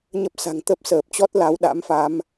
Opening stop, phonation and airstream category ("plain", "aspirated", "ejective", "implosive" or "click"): plain